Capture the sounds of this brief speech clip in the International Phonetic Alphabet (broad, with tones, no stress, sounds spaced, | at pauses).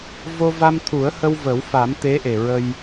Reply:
v o˧ v a˧ m t̪ʰ u˨˩˦ ə̯ h ə˧ w v ə˨˩˦ w f a˨˩˦ m t̪ e˧˥ ʔ e˨˩ ɹ ə˧ j